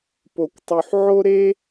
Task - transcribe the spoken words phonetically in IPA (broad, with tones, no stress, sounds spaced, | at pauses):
p o˥ kʷ tˤ u˥ ħ ʕ o˥ ɾ e˥